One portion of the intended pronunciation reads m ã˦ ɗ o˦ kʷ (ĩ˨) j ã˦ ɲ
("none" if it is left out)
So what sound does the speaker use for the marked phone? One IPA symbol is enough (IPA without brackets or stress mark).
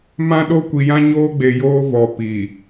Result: i˨